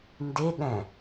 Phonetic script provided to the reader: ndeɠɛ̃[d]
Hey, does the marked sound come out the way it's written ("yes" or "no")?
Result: no